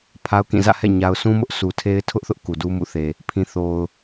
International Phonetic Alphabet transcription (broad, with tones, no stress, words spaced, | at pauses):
pʰa˦ʊ̯kĩ˦˨ zä̰˦˨hɛ̰˦˨ ɲa˦ʊ̯ sũ˦mʊ˦ʔ su˨tʰe˦ɪ̯tʰʊ˦ʔθʊ˦ʔ ku˨du˦mṵ˦˨θe˨ | pʰĩ˨θo˨ʊ̯